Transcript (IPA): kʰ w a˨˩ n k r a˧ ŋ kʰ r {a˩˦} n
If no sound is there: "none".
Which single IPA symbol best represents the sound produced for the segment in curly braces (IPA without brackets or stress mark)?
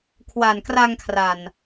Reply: a˨˩